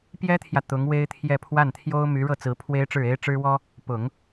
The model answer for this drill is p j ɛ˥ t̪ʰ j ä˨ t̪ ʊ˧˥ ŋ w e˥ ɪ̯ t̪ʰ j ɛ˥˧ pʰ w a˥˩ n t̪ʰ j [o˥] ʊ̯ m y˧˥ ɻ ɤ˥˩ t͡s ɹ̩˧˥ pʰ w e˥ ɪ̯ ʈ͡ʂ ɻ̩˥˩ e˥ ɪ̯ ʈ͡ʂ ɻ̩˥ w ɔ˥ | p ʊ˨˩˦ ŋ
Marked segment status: correct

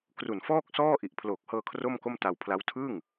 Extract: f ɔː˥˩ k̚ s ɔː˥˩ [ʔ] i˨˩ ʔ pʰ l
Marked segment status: correct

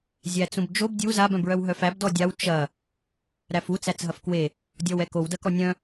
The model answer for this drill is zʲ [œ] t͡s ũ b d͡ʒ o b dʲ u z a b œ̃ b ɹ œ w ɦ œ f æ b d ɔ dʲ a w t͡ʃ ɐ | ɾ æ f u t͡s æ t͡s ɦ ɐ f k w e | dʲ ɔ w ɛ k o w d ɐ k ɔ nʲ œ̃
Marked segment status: incorrect: æ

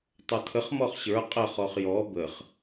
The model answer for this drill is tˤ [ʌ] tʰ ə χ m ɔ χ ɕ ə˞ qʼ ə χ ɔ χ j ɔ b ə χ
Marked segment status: correct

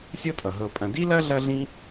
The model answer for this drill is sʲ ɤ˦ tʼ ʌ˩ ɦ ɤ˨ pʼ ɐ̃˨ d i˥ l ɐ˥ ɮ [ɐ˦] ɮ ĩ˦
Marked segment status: correct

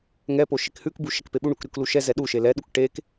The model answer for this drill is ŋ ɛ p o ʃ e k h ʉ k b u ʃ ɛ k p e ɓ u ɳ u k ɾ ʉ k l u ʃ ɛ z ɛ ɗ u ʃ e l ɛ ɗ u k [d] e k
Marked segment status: incorrect: ʈ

